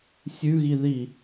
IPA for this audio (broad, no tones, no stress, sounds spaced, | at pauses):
sʲ ʉ ɣ i ð i